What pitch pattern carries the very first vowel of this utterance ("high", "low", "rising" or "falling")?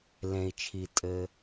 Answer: low